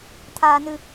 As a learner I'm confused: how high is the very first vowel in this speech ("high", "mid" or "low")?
low